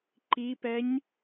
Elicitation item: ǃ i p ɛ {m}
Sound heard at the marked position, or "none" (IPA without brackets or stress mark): ɲ